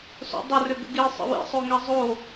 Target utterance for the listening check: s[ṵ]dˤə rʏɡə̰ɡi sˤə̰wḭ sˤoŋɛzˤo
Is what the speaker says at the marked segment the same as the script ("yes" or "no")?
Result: no